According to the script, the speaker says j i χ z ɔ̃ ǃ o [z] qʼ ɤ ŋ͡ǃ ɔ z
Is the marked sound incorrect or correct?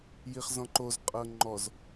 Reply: correct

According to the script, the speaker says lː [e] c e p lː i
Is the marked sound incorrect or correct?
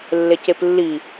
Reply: correct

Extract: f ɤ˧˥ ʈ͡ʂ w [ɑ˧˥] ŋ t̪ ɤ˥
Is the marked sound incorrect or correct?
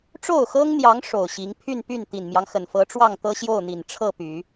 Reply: incorrect: ɑ˥˩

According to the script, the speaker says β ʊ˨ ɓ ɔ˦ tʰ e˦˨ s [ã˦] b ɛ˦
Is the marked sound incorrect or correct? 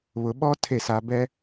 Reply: incorrect: a˦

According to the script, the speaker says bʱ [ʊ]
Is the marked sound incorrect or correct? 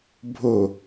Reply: correct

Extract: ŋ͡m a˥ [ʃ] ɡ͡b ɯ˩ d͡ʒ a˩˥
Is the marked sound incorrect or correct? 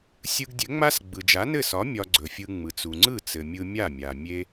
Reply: incorrect: s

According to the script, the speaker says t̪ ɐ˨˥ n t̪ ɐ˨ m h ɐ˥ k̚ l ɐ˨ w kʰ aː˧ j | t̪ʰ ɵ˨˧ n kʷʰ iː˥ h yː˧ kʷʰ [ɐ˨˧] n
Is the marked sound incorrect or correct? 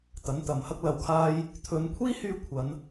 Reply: correct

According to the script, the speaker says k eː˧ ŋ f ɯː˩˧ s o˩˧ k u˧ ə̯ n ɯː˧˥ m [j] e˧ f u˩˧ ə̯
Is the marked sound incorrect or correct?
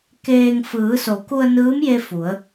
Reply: correct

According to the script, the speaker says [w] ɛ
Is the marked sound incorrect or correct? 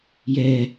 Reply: incorrect: j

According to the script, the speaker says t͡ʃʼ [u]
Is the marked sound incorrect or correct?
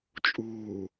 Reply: incorrect: uː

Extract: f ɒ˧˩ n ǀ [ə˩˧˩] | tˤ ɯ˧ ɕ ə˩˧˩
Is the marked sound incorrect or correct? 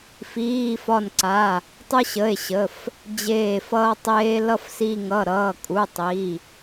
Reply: incorrect: a˩˧˩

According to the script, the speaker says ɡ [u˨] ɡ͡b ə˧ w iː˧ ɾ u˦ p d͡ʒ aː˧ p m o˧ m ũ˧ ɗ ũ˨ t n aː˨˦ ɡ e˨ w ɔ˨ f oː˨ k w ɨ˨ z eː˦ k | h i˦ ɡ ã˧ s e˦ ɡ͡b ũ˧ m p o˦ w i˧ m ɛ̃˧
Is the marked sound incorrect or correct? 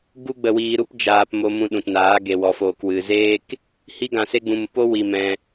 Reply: incorrect: u˦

